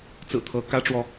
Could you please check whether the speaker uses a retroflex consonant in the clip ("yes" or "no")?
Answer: yes